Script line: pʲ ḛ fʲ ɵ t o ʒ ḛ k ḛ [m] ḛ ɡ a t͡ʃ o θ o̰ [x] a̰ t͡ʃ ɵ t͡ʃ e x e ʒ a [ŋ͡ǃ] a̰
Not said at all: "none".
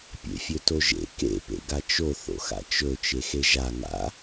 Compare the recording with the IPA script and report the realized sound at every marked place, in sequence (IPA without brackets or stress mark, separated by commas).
p, x, ŋ